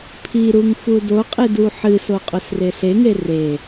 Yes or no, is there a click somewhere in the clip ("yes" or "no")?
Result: no